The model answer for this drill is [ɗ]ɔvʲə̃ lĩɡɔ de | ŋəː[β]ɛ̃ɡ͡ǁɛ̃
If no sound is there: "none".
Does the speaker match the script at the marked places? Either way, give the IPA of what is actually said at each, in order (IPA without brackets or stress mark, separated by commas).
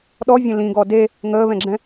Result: ɗ, β